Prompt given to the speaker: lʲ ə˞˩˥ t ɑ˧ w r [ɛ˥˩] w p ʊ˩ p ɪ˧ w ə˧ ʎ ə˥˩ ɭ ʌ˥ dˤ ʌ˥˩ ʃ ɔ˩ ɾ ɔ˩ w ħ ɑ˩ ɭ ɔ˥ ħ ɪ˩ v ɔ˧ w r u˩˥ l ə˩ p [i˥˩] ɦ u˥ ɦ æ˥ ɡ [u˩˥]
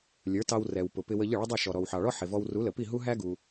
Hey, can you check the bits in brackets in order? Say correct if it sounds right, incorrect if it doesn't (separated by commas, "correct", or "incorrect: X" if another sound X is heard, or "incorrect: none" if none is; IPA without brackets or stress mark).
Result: incorrect: ɛ˩, correct, incorrect: u˩